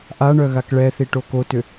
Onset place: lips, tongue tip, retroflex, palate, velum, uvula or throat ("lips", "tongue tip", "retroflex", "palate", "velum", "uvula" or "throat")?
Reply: throat